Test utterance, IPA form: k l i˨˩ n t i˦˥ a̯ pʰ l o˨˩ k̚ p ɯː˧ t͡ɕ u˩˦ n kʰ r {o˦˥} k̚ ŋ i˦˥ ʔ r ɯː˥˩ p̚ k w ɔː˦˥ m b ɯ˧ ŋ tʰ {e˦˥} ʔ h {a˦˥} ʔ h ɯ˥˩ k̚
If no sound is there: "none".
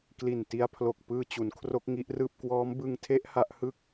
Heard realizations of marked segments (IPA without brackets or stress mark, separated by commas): o˦˥, e˦˥, a˦˥